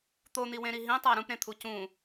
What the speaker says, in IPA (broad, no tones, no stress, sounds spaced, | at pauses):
t̪ o n̪ i w ẽ ɾ i ɦ ĩ tˤ æ ɾ ũ p ɾ ẽ t̪ʰ u c ũ